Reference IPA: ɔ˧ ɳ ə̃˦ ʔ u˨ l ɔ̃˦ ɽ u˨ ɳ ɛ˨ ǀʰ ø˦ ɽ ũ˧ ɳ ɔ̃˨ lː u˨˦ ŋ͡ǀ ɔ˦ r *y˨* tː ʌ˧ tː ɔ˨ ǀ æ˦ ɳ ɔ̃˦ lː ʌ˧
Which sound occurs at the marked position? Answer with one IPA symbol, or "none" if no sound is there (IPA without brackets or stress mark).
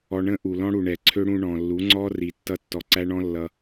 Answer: i˨